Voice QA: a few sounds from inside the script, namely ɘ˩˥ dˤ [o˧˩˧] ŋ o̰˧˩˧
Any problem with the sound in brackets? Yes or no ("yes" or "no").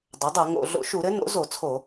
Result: yes